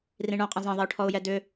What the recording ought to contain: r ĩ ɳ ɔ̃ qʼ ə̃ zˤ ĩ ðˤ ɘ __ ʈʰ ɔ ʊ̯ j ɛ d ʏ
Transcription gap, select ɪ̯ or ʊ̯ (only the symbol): ʊ̯